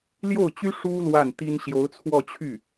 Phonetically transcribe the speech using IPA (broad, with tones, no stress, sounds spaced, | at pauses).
l j o˥˩ ʊ̯ t͡ɕ y˥ ʂ u˥ l w a˥˩ n t̪ i˥ n ɕ j o˧˥ ʊ̯ t͡sʰ w ɔ˥˧ t͡ɕʰ y˥˩